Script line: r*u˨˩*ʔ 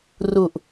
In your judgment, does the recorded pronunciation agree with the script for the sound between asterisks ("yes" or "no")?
yes